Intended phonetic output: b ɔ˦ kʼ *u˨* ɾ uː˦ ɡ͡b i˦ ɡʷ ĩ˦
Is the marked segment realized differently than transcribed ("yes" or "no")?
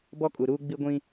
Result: no